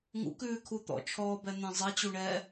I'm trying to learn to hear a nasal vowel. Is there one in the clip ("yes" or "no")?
yes